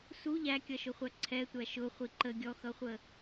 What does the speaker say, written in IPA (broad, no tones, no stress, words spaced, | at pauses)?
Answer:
su ʎækʲʌʃʊχʷæ ǀʰɛtʷæ ʃʊχʷi ǃə ɡʲɔxʌχʷə